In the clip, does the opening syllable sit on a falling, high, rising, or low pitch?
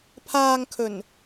low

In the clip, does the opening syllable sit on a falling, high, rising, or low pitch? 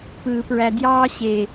low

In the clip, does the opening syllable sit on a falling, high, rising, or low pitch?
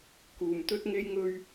low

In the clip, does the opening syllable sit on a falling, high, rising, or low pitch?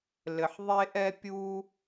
low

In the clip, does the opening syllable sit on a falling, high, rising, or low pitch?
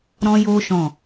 high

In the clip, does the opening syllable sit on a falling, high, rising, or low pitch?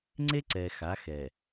high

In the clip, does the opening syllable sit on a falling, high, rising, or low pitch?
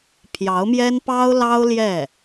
rising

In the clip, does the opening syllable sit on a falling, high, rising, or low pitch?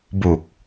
low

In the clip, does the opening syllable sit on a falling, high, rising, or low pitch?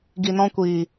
low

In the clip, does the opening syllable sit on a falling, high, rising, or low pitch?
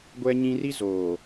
high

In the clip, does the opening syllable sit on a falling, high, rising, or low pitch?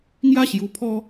high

